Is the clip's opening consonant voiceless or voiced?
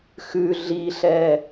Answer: voiceless